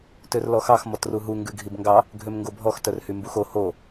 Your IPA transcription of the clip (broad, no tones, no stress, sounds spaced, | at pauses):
t ø r l ɔ x ɑ x m ɔ t r u ɦ u ŋ ɡ ʉ ɡʱ i b ŋ ɡ ɑ | ɡʱ ø m ŋ ɡ o bʱ ɔ x t œ r h y m b u x o h o